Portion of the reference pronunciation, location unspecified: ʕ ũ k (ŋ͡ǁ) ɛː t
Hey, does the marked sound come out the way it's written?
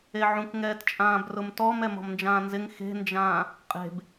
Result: no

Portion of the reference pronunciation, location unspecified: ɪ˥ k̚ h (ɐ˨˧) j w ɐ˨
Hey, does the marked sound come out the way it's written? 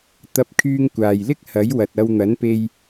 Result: no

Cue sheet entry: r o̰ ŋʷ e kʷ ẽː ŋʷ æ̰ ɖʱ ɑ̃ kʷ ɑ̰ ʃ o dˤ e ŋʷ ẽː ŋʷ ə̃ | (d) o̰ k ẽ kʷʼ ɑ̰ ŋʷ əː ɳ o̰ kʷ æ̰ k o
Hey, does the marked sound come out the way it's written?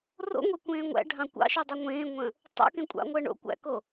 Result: no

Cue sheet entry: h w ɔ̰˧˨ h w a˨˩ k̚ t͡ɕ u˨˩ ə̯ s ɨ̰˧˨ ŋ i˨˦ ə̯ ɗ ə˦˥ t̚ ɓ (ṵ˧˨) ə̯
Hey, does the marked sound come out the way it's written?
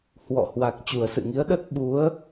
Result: no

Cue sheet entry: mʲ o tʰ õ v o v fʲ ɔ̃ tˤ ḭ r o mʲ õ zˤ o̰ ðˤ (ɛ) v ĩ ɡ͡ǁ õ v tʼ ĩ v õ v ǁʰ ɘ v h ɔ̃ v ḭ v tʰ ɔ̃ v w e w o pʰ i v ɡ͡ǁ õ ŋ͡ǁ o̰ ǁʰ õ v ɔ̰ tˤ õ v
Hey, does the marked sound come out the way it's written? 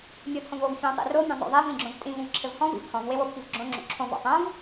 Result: no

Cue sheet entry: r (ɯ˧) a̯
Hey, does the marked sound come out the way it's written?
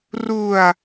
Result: no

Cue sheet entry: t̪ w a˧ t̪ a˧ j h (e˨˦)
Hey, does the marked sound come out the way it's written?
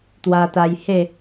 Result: no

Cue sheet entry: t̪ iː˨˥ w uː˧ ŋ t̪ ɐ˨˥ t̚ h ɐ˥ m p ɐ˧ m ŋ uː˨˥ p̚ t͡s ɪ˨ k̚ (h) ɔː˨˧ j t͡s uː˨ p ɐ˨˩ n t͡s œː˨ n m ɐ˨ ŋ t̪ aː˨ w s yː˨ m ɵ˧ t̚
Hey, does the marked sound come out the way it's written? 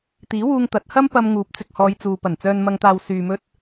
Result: yes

